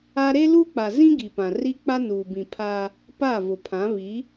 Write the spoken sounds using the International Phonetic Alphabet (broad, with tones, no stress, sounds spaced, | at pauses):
a˦ ɾ e˦ l uː˦ k͡p a˨ z ĩ˦ ɡ i˨ p ã˨ r i˦ k͡p a˦ n uː˨ b ĩ˨ pʰ aː˦ | p a˦˨ v ʊ˨ pʰ ã˨˦ β i˨˦